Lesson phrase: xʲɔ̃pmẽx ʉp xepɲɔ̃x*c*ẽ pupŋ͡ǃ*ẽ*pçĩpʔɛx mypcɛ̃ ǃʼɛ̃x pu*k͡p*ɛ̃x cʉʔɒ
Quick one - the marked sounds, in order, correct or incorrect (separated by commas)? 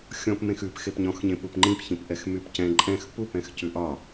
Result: incorrect, incorrect, incorrect